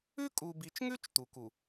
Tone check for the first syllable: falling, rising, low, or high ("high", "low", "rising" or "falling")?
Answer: high